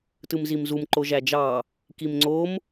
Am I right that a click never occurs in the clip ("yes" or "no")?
no